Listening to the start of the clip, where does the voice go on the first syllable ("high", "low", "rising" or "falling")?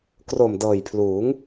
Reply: low